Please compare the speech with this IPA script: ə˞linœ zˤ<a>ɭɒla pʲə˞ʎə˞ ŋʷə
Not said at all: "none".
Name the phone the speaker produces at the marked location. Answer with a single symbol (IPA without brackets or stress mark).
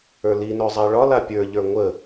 a